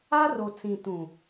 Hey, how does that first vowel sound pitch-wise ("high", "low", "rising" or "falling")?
high